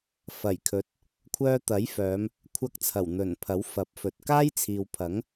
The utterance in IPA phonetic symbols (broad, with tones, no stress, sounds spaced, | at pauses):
f ɐ˨˩ j kʰ ɵ˨˥ t̚ | kʷʰ œː˧ t̪ ɐ˨˥ j f œː˨˧ m | kʷʰ ɐ˧ k̚ t͡sʰ ɐ˨˩ w n̪ ɵ˨˩ n pʰ ɐ˨˥ w f ɐ˨˥ p̚ f ɵ˨ t̚ k aː˥ j t͡sʰ iː˨ w pʰ ɐ˨˥ ŋ